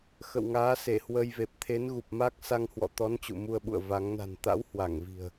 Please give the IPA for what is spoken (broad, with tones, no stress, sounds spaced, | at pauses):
x ə̰˧˨ w ŋ aː˨˦ s e˧˩ h w ə˧ j v e˨˩ p̚ t̪ʰ e˨˦ n ɣ u˨˩ p̚ m a˦˥ k̚ s a˧ ŋ h w ɔ̰˧˨ t̪ ɔ˨˦ n t͡ɕ ṵ˧˨ m u˧ ə̯ ɓ ṵ˧˨ ə̯ v a˨˦ ŋ n a̤˨˩ n t̪ a̰˧˥ w h w a˧˩ ŋ v i̤˨˩ ə̯